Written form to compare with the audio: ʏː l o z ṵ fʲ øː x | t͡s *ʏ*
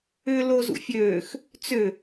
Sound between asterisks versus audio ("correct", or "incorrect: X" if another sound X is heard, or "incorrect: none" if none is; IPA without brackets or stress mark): correct